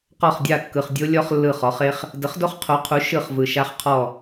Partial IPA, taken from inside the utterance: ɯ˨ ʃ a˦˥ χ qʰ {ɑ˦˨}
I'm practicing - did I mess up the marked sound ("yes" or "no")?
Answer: yes